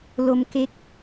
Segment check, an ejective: absent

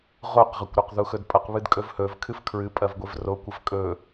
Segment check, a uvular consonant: present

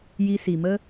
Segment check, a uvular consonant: absent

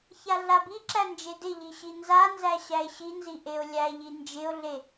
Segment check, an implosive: absent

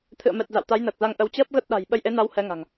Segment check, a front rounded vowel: absent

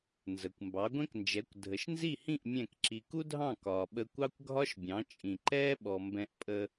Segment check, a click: present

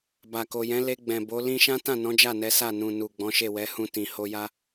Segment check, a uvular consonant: absent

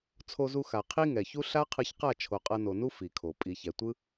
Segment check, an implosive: absent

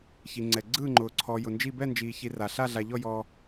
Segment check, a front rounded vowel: absent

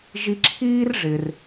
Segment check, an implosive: absent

